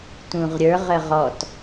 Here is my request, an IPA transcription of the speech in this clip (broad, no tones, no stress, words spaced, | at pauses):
tũʁɾʲə˞ʁə ʁɔt